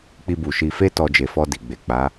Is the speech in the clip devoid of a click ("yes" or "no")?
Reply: yes